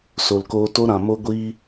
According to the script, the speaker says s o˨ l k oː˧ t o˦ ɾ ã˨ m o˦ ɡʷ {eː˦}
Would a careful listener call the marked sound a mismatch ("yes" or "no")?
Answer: yes